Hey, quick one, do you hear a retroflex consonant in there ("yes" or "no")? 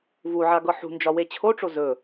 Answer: yes